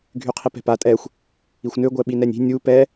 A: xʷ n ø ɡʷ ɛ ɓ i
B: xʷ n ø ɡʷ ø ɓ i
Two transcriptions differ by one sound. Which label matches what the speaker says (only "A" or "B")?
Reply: A